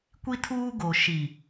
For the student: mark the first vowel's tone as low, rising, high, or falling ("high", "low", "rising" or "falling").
high